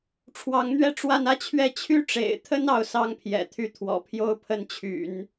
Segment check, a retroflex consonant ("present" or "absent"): present